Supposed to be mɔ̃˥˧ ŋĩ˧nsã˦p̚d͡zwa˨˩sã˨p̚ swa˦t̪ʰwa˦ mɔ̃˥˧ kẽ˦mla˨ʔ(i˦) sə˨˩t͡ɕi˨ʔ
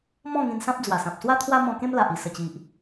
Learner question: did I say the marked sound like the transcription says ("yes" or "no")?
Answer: no